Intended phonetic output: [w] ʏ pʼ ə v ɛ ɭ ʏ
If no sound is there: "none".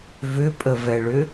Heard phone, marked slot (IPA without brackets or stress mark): v